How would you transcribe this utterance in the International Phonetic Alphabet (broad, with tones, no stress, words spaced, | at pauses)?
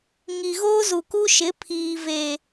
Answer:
ŋi˨ɣoː˦zu˨ ku˦ʃɪ˨˦ pʰiː˨ve˨